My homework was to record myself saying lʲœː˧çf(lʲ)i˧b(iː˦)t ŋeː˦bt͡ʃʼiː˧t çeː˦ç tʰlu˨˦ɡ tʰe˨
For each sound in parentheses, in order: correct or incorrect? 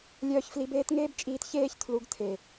incorrect, incorrect

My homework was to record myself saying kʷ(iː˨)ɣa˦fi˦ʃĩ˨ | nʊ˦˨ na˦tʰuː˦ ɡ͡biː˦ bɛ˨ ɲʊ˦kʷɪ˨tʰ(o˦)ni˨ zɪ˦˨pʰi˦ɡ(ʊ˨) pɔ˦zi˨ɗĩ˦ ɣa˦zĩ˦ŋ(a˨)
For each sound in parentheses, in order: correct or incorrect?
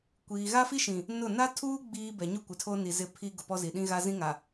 correct, correct, correct, correct

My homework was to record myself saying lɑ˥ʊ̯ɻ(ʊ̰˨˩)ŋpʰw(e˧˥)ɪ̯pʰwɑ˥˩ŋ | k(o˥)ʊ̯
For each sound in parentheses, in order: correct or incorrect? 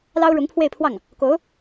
incorrect, incorrect, incorrect

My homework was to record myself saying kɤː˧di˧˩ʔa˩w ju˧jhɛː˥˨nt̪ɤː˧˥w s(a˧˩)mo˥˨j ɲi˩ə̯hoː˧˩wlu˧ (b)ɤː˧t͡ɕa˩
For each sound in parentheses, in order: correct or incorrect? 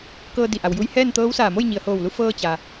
incorrect, incorrect

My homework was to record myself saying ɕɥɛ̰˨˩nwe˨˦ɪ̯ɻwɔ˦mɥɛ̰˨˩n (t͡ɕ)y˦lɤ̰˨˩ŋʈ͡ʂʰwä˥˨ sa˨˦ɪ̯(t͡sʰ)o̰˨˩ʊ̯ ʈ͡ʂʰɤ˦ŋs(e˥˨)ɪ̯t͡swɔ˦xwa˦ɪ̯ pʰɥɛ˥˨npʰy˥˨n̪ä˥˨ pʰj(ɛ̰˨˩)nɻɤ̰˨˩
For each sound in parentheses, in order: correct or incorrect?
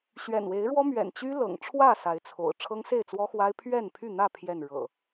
correct, correct, correct, incorrect

